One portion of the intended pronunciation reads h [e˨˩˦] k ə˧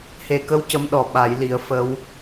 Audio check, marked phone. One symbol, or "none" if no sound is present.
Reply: e˨˩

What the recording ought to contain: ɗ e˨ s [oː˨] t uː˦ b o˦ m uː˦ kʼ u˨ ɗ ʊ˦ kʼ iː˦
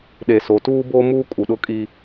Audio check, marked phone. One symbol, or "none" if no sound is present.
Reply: o˨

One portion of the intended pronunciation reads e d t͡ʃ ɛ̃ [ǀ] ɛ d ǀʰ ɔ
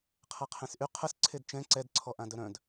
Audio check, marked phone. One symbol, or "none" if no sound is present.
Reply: ǀ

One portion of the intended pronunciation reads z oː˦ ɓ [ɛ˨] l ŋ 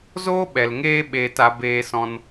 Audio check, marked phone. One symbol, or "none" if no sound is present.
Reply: ɛ˨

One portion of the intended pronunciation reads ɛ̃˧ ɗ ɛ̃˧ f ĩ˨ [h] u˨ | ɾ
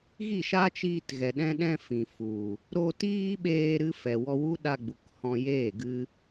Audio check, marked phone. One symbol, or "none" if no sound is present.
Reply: f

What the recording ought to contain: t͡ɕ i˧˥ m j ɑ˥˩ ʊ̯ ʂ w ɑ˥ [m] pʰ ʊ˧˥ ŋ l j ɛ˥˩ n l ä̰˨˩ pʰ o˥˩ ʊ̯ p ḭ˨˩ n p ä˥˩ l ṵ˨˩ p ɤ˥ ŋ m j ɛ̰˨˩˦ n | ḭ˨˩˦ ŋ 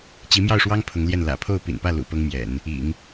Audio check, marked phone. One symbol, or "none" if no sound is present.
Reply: ŋ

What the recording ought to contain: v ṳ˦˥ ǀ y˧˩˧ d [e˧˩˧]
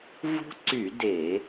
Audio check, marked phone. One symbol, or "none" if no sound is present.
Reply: e˧˩˧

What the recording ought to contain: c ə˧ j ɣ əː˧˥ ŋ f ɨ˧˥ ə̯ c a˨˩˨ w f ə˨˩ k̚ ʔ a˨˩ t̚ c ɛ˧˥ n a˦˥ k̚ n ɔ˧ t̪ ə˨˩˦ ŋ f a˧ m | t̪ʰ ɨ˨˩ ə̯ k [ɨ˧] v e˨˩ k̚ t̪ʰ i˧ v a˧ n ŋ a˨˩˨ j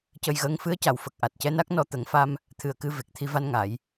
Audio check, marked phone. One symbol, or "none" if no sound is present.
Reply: ɨ˧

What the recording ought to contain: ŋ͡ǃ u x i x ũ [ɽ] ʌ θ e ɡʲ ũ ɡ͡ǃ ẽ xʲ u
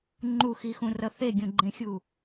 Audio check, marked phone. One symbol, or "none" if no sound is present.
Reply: r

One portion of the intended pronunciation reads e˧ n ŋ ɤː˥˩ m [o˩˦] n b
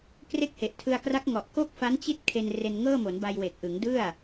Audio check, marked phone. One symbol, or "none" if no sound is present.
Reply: o˩˦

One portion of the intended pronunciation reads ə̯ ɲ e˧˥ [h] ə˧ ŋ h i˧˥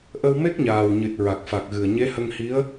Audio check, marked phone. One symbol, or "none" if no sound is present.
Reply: h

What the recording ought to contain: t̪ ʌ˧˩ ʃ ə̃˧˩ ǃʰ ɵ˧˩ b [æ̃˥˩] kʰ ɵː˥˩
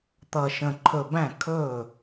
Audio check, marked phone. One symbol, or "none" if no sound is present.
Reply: æ̃˥˩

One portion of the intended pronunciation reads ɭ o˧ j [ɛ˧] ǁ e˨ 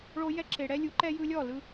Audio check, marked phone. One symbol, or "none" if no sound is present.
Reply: ɛ˧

